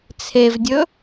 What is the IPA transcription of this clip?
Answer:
t͡sʰ e v dʲ ɵ

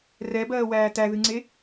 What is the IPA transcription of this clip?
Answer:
r ɛ b ɜː w æː t æ ð ɨ ŋ͡ǀ e

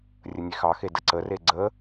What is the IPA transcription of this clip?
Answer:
rʲ ə nʲ e x ɑ x e d ə ǀ ə r e ɡ͡ǀ ə

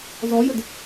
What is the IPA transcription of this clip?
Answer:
z ɔ j ə d

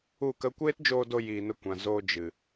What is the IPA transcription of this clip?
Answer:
u˦˨ k ə˦ kʷ eː˦ t d͡ʒ oː˧ d o˧ j iː˧ n ə˦ kʷ ã˨ z oː˧ d͡ʒ ɨ˨

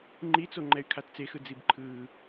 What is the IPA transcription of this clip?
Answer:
ŋ͡ǃ i t͡s o ŋ͡ǃ ɛ y̯ kʰ a t t͡s e x ɯ d͡z i b ǃʰ ɯː

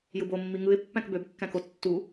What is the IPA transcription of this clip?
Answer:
j ɯ b o mː i ŋ ɯ ɪ̯ pː æ̃ k b ø b kː æ̃ k o tː u

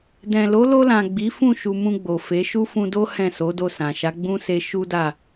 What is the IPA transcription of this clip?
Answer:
d ɛ̃˨ l o˨˦ l o˧ l ã˨ ɡ͡b i˨˦ f ũ˦˨ ʃ u˧ m ũ˧ ɡ͡b o˨ f e˨˦ ʃ u˦ f ũ˧ d o˦ h ɛ̃˦˨ s o˨˦ d o˦˨ s ã˨ ʃ a˨˦ ɡ͡b ũ˦ s e˧ ʃ u˦ d a˦˨

